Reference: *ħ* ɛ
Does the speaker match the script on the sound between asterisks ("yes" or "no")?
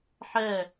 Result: yes